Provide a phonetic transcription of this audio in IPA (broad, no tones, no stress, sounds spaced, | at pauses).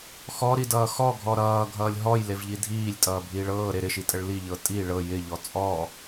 x ɔ ɾ i d ʌː x ɔ ɡʱ ɔ ɾ ʌː ɡʱ ʌː lʲ ɦ ɔ j l e v ʎ i dʱ iː lʲ tʼ ʌː bʱ iː ɭ ɤː ɾ e ɾ ɪ ʃ i tʼ ə ɭ l i ʎ ɤ tʼ i ɭ ɤ j ɪ ʎ ɔ t͡sʼ ɔ